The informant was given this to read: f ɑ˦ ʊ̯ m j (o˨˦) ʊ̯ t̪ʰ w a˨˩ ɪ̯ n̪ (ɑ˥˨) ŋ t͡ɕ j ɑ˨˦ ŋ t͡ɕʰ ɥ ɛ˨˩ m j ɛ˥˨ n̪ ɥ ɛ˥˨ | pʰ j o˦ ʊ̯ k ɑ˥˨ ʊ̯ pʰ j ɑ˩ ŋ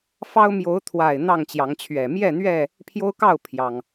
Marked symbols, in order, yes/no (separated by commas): yes, yes